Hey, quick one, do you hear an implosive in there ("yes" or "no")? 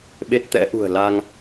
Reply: yes